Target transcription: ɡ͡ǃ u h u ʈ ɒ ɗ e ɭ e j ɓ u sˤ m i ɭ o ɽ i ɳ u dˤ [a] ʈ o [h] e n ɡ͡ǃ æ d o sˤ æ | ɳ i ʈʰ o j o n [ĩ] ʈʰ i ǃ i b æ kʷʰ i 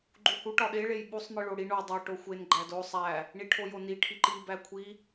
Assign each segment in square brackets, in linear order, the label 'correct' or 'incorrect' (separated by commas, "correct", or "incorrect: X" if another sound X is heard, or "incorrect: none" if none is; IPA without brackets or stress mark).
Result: incorrect: æ, incorrect: xʷ, incorrect: i